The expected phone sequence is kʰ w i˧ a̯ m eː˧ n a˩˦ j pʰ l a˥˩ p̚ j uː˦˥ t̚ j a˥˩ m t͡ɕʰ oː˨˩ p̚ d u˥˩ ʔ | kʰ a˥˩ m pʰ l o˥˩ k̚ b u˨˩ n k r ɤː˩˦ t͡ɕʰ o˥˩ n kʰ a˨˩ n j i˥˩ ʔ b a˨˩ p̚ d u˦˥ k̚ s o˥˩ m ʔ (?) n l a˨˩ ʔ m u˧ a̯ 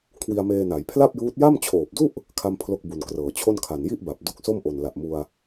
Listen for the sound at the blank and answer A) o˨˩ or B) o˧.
A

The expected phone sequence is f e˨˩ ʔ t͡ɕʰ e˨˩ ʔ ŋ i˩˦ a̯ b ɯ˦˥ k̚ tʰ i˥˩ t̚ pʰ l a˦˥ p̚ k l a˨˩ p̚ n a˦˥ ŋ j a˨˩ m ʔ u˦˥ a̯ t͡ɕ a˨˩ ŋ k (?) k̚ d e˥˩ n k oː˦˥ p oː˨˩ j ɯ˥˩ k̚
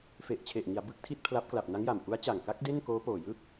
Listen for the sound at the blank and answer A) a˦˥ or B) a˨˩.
A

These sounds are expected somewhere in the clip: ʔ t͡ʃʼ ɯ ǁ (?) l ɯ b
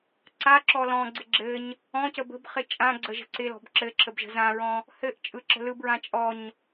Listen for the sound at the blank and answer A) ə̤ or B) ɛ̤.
A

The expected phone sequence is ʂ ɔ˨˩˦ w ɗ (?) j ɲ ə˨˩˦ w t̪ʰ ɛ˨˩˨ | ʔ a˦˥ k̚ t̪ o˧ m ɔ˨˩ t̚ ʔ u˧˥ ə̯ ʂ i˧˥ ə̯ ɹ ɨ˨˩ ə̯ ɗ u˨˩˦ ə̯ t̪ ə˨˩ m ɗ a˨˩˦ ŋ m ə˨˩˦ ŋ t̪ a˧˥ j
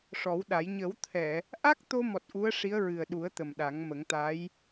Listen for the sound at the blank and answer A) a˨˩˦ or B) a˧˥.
A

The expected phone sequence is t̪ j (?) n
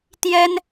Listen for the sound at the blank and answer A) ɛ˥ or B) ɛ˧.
A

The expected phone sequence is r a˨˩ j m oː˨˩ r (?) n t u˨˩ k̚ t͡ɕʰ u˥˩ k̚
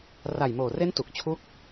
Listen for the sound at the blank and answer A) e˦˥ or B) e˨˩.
A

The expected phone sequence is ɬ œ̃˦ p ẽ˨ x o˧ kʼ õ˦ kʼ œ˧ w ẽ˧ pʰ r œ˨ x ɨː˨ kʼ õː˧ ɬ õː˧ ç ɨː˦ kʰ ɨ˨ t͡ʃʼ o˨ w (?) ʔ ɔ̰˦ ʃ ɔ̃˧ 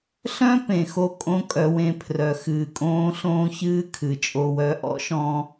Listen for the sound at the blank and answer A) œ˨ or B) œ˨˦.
B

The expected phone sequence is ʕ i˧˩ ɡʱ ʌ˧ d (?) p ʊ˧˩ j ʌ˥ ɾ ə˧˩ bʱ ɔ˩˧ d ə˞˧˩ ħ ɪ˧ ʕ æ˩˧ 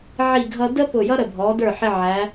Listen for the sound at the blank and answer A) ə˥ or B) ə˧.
A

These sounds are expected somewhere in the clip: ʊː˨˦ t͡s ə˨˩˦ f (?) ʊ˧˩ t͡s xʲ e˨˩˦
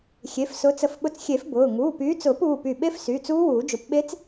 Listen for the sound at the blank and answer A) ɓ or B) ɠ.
A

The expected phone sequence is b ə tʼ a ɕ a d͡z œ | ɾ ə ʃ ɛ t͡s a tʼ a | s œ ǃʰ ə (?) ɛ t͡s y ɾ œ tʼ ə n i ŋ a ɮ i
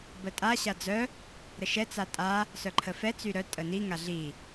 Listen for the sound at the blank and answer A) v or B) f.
B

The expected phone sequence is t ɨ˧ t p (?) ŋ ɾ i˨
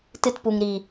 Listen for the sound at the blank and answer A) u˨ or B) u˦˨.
A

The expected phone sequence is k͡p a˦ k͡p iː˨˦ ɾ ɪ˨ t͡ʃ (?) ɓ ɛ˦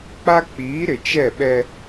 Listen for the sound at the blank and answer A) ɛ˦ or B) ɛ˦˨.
B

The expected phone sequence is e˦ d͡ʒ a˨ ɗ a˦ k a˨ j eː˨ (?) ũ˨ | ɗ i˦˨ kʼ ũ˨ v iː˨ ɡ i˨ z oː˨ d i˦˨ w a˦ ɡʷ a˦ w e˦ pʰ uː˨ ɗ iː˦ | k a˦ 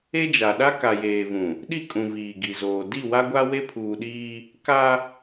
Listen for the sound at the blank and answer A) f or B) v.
B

